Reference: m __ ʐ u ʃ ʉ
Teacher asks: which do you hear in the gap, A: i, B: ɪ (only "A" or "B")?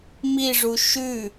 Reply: A